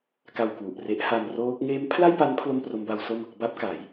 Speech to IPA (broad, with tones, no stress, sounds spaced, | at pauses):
k a˧ w k w u˨˩ ʔ r e˦˥ ʔ h a˧ m r oː˦˥ k̚ ŋ eː˦˥ m pʰ l a˥˩ j p a˦˥ n pʰ l o˥˩ m p r o˦˥ m b a˦˥ w s o˥˩ m | b a˦˥ p̚ k a˩˦ j